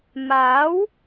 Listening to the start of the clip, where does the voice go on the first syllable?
rising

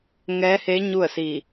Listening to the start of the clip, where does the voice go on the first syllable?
rising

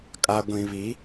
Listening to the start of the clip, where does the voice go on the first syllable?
low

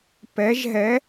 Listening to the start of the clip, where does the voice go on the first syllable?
rising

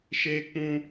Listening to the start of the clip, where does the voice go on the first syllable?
high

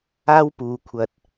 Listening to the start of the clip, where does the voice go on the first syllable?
high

